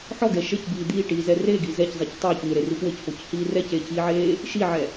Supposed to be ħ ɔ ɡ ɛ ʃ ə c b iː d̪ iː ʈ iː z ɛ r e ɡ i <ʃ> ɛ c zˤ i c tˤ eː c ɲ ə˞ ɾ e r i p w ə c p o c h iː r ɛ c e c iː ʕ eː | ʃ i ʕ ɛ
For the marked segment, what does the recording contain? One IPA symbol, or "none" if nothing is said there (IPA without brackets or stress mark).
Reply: z